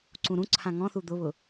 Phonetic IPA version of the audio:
ǀ ũ ɾ ũ ǀʰ ã ŋ ɔ̃ θ u d̪ ʊ β ʊ

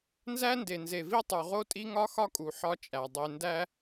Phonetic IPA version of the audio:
n z æ˦ n d e˨ n z e˨ v i˦ tˤ u˨ ʁ o˦ tʼ i˦ ŋ ɒ˦ x ɒ˦ kʼ u˨ ħ ɒ˦ t͡ʃʼ æ˨ dˤ e˨ n d æ˦

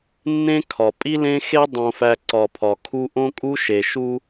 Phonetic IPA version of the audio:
nː ẽ˦ kʰ ɒ˨ pʼ i˦ l ẽ˦ x e˦ dˤ õ˨ f æ˨ ǀ ɒ˨ pʰ ɒ˨ kʰ u˦ ʔ õ˦ kʼ u˦ ʃ e˨ ʃ u˦

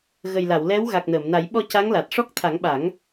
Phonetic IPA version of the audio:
ɣ ə˨˩ j l a˨˩˨ w l ɛ˧˥ w ɣ a˨˩ k̚ n əː˨˩˨ m n a˨˩˦ j ɓ ɔ˧ c a˧˥ ŋ l a˨˩ t̚ ʂ ɔ˦˥ k̚ t̪ʰ a˨˩˦ ŋ ɓ a˨˩˦ ŋ

